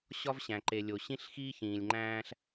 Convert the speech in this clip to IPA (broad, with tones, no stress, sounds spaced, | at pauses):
ɕ ɒ˦ v ɕ æ̃˨ ǃ e˨ lʲ o˨ ɕ ĩ˦ ɬ x iː˦ ç ĩː˨ lʲ ŋ͡ǃ æ̃ː˦ ɬ